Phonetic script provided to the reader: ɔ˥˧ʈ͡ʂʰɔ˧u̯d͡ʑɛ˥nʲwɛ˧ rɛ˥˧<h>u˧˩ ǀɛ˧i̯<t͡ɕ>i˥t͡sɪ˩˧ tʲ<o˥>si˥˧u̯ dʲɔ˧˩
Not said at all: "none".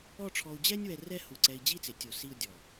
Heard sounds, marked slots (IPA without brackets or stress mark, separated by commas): h, d͡ʑ, o˧˩